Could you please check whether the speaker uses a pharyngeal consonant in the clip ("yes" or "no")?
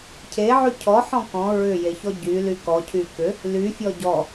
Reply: yes